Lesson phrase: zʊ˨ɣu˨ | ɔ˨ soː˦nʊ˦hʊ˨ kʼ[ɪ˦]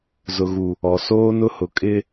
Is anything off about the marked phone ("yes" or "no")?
no